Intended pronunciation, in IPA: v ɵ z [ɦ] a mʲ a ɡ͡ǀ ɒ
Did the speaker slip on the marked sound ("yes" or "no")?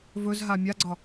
no